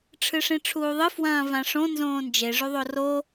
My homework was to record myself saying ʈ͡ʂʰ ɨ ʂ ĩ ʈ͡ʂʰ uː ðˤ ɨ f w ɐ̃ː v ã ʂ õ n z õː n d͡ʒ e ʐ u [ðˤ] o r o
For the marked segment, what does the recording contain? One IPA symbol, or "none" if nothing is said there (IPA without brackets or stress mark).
ðˤ